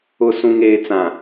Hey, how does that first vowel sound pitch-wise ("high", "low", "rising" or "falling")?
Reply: low